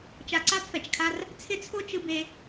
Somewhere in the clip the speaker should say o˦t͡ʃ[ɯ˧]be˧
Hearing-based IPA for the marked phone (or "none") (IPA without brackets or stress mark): ɯ˧